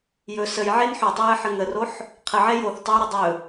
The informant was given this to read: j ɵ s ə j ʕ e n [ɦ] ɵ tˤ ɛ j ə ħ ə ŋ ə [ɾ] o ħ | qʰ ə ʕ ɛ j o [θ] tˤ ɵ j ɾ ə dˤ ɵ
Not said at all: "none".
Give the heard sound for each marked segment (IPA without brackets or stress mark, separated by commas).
ħ, r, θ